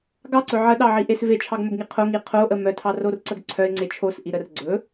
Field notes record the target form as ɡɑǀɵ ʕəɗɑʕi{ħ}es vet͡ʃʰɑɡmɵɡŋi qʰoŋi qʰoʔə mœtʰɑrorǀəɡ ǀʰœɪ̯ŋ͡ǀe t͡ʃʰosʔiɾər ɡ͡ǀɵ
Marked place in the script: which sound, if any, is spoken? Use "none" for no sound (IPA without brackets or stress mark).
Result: ʔ